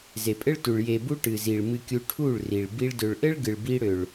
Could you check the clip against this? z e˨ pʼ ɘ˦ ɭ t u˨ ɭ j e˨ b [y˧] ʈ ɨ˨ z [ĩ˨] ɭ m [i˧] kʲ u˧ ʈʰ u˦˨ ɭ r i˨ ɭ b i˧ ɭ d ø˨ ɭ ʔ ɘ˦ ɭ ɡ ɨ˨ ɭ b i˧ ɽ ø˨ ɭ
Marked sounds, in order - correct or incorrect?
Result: incorrect, incorrect, incorrect

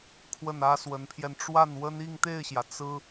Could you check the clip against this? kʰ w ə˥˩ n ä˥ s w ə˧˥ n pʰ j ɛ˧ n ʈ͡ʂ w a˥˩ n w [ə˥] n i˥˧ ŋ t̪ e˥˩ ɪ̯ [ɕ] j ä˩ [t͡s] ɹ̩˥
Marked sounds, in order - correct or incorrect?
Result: correct, correct, correct

